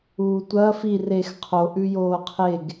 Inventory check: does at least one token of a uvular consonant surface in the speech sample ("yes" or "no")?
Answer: yes